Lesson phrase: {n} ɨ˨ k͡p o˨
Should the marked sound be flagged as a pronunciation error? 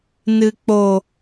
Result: no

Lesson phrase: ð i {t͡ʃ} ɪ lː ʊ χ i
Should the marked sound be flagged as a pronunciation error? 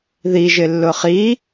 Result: yes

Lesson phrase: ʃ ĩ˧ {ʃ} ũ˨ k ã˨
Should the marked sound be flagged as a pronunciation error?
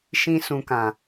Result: yes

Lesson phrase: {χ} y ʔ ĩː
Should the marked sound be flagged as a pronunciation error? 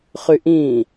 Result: no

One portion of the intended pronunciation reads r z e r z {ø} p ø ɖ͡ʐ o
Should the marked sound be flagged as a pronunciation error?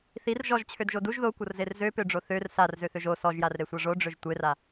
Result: no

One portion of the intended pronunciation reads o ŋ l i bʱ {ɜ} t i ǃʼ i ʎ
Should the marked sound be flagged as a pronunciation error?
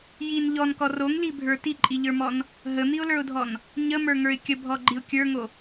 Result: yes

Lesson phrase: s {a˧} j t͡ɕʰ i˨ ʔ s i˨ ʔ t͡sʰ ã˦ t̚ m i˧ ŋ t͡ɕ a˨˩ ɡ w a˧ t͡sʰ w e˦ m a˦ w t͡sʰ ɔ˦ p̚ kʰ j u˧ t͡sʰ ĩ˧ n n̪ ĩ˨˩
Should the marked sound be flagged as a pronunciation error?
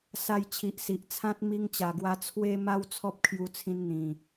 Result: no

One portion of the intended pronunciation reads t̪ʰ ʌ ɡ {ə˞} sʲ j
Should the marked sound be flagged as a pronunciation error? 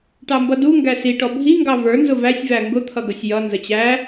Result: yes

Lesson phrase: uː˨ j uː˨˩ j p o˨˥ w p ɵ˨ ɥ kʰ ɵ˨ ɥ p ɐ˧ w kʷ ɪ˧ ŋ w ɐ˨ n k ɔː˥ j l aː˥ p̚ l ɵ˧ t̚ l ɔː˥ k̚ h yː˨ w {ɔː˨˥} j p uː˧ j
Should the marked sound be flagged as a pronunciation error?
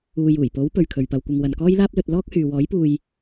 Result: no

